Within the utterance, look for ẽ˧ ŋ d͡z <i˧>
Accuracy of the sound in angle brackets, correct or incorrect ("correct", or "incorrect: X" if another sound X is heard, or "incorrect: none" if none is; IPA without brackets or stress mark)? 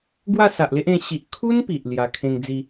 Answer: correct